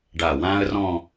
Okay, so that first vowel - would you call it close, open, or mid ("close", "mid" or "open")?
open